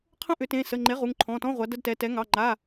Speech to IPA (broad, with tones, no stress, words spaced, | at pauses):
qʰə̃˦˨ʔʏ˨˩˦ tẽ˩˧˩sə˩˧˩ŋ͡ǃe˩˥ ʁu˩˧˩ŋǃʰɔ̃˩˧˩tɔ̃˧˥˧ ʁʷa˩˥də˧˥˧dtɛ˩˧˩tɛ˩˥ ŋɑ˩˧˩ŋ͡ǃa˩˧˩